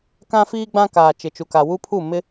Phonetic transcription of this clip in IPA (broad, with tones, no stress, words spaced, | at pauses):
kã˦fiː˦ɡ͡bã˦kaː˨ t͡ʃɪ˨t͡ʃu˨ka˨ wu˦pʰu˦˨ mɪ˦